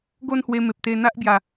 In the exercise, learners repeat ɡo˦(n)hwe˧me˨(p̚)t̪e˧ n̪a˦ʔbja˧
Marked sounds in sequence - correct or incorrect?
correct, correct

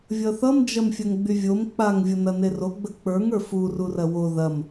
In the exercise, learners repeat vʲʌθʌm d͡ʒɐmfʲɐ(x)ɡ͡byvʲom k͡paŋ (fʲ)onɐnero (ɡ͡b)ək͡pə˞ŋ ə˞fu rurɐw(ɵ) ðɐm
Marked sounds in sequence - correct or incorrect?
incorrect: ŋ, incorrect: vʲ, correct, incorrect: o

